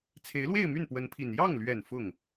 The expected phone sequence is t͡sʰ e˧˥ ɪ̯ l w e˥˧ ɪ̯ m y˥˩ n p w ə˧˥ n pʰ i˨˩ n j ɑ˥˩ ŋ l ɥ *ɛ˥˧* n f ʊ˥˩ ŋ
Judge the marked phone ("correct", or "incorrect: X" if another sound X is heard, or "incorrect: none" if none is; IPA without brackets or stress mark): incorrect: ɛ˨˩